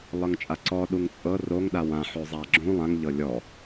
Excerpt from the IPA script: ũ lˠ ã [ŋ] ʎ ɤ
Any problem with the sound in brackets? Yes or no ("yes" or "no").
no